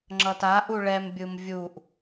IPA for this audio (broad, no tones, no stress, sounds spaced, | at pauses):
ŋ͡ǁ ʌ t a ʔ u ɭ ɛ m bʲ ɯ m vʲ u ʔ